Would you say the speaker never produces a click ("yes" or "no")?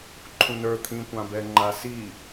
no